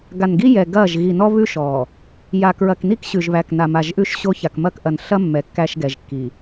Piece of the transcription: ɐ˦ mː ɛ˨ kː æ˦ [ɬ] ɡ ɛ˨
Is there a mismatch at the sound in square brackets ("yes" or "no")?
yes